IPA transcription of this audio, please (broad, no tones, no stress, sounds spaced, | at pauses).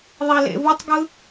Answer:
ðˤ i l ḛ v ɯ tˤ ɡ ɯ